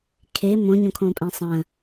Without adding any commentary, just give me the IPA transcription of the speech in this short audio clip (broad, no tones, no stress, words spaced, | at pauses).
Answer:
kʰe mõɲõkʰõːpʼɛ̃ sˤə̃ː